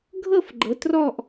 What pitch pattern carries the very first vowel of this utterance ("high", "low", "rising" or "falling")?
falling